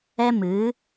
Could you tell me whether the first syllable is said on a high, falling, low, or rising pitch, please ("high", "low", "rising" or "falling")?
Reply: high